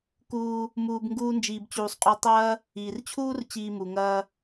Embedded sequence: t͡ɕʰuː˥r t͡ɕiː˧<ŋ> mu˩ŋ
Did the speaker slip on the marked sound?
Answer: yes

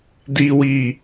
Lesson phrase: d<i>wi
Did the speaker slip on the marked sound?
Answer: no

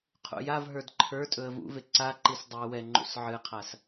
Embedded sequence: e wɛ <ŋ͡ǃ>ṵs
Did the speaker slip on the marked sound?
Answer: no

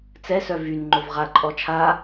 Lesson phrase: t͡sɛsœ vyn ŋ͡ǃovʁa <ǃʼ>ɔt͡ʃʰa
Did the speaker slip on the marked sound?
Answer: no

